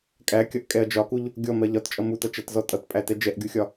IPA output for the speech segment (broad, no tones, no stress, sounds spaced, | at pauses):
kʼ æ kʲ ʌ ʔ kʼ ɛ ɐ̯ d͡ʒ ɒ k u ʎ | ɡʲ ɔ m ɜ ʎ ɒ t t͡ʃʼ ʌ m u t ʌ t͡ʃ æ t z ɔ tʼ ʌ t pʼ æ t ɛ d͡ʒ ɛ ʔ ɡʲ u xʲ ɒ